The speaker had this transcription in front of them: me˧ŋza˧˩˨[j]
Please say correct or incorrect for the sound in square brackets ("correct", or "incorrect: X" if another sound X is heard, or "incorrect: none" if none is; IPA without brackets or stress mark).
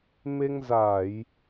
correct